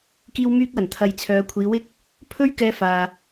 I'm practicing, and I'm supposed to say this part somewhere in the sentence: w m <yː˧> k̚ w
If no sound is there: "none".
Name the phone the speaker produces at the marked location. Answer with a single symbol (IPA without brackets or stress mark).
yː˧